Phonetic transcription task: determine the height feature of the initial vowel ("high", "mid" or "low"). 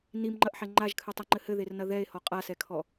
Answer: high